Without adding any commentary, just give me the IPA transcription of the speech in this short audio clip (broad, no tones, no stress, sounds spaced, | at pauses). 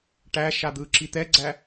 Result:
ʈ æ ʃ a d̪ ɯ ǁ i t̪ ɛ ɡ͡ǀ æ